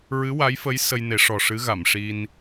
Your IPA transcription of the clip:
ɹ ɨ˧˥ w a˧˥ j f ə˧˥ j s ə˧ j n e˨˩˦ ʂ ɔ˨˩ ʂ ɨ˧˥ ɣ a˨˩˨ m ʂ i˧ n

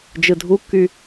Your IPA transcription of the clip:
d͡ʒ ɯ dʱ u kː y

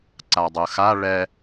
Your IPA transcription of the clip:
ǀ a dˤ ɯ x a ɭ ɛ

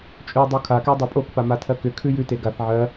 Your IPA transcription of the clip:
t͡ʃʼ ʉ dˤ u kʰ a k ɛ dˤ a pʼ o k p a m a tʰ ɜ k ʏ kʰ ʉ j ʉ t e ɡ a θ ʕ ɜ

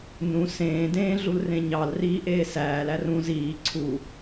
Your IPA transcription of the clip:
n ũ s ẽː d ẽː ɮ u l r ẽ ɲ ɑ l r iː ʔ eː s æː l æ r ũ z iː ǀʰ u

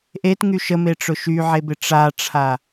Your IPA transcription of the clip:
ʔ e t ŋ y ʃ ə m e ʈ͡ʂ ʊ ʃ y ʕ e b ɪ ʈ͡ʂ a ʈ͡ʂʰ a

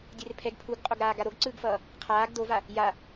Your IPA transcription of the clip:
dʲ e r pʰ ɛ ɡ pʰ u ɡ qʼ o ɡ ɾ aː ɡ a ɾ o ɡ ǀ ɯː ɡ f ʌː | qʰ aː ɡ d o v a | j a

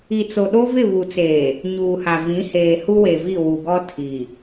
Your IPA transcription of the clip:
i˨ t͡s o˨ ɗ o˦ v ɪ˦˨ β u˨ t͡s eː˨ | ɲ uː˨ h a˨ v ĩ˨˦ h eː˨ h u˦ w e˨ v i˦˨ w u˨ ɡ ɔ˦ tʰ i˨

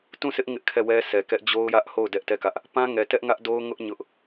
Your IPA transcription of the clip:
t ũ˦˨ s ɪ˦ ʔ ŋ ɪ˦ ʔ kʰ ɛ˦˨ w ɛ˦ sʰ ɛ˨ k ɛ˦ ʔ d͡ʑ o˦ ʊ̯ j ä˦ ʔ h o˦˨ ʊ̯ d ɛ˦ ʔ t ɛ˦˨ k ä˦ ʔ | p ã˦ ŋ ɛ˨ t ɛ˦ ʔ ŋ ä˦ ʔ d o˦ ʊ̯ ŋ ʊ˦ ʔ ɲ ʊ˦ ʔ

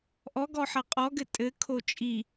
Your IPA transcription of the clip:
ʔ ɔ ɡ ɔ ħ ɐ qʼ ɔ ɡ ɘ tʼ ɘ kʰ o t͡ʃʼ i

